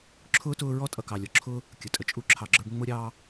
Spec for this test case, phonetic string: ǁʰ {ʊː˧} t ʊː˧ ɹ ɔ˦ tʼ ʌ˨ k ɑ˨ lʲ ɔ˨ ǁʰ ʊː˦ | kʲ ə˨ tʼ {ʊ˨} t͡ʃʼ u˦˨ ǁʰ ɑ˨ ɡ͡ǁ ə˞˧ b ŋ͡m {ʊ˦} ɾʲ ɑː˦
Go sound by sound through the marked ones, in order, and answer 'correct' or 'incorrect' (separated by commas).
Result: incorrect, incorrect, correct